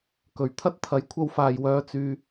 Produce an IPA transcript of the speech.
k ɵ˨˩ ɥ t̪ʰ ɐ˥ t̚ t̪ʰ ɐ˨˥ j kʷʰ ɐ˧ w f aː˨ j w œː˧ t͡s yː˧

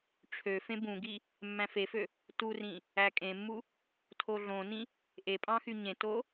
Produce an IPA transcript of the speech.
ʈ͡ʂʰ ø f ẽ b ũ ɡ i | mː æ̃ f e f ø | t u r ĩ | æ kʼ ẽ mː u | tʰ o ɮ õ n ĩ | ʔ e pʼ ɑ̃ x y ɲ ẽ t o

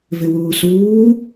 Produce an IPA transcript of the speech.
v ɪ w uː s uː

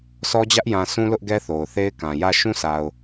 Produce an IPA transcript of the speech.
sʰ ɔ˦ d͡ʑ ä˦ ʔ j ã˨ s ũ˦ l ʊ˦ ʔ ɡ ɛ˦ θ o˨ ʊ̯ θ e˦ ɪ̯ k ã˨ j ä˦˨ ʃ ũ˦ sʰ a˨ ʊ̯

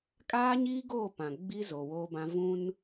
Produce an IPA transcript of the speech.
kʼ aː˦ ɲ iː˦ ɡ oː˦˨ p ã˨ ɡ͡b i˦ z o˨ w oː˦ b ã˦ v ũ˦ n

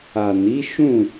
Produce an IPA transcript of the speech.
a˨ n i˨˦ ʃ ũ˦˨

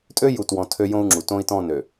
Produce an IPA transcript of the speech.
tʼ ø˦ j u˦˨ t w ɔ̃˦ tʰ ø˦ j õ˦ u̯ ŋ͡ǁ u˨ t õ˦ i̯ t ɔ̃˦˨ n ø˨

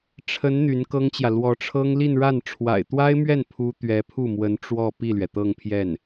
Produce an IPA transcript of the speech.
ʈ͡ʂʰ ə˧˥ n n̪ y˧˥ n k ɤ˥ ŋ t͡ɕ j ä˨ l w ɔ˧˥ ʈ͡ʂʰ ɤ˥ ŋ l i˥˧ n ɻ a˥˩ n ʈ͡ʂʰ w a̰˨˩ ɪ̯ t̪ w a˥ ɪ̯ m ɥ ɛ˥˩ n pʰ u˥ t̪ ɥ ɛ˧˥ pʰ u˥˩ m w ə˧˥ n ʈ͡ʂ w ɔ˥˧ p i˥˩ l ɥ ɛ˩ t̪ ɤ˥˧ ŋ pʰ j ɛ˥˩ n

